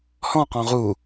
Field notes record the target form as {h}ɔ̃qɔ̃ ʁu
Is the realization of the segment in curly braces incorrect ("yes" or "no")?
no